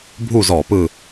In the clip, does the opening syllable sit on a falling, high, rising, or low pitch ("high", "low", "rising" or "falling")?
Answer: falling